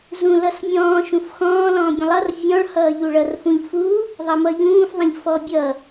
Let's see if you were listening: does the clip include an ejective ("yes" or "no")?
no